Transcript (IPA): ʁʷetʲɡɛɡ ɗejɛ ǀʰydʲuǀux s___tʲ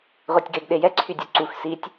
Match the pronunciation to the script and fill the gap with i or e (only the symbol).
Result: i